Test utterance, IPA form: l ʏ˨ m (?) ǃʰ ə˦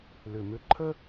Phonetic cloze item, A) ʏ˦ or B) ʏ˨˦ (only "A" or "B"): A